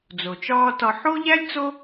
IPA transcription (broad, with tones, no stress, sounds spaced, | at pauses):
d͡z o˩ t͡ʃ ɒː˦ t ɒ˨ ħ o˥ ʎ æ˥ lʲ t͡s o˦